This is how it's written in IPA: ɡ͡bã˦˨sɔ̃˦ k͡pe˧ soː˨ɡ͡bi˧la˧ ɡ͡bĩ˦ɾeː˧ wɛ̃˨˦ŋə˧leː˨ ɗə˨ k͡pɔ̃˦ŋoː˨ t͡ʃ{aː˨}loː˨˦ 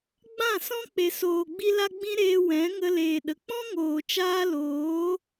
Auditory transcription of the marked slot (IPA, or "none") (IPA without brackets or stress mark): aː˦